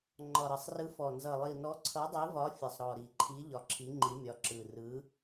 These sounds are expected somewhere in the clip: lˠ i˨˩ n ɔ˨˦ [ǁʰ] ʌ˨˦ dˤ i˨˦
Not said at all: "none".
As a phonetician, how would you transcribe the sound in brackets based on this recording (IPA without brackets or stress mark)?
ǀʰ